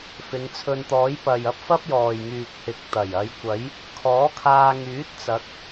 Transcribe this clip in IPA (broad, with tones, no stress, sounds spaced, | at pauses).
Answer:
f ɪ˨˧ ŋ t͡sʰ ɵ˧ n t̪ ɔː˨˥ j p ɐ˨ j ɐ˥ p̚ f ɐ˥ p̚ j ɔː˨ j ŋ yː˨ k̚ h ɪ˨ k̚ t̪ ɐ˨˩ j ɐ˨˧ j kʷ ɐ˨˥ j | kʰ ɔː˨˥ kʰ aː˧ ŋ yː˨˥ t̚ t͡s ɐ˨˥ k̚